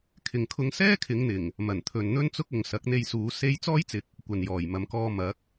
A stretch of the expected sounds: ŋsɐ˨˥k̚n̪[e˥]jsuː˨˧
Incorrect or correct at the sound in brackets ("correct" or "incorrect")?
incorrect